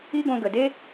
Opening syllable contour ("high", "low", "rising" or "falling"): high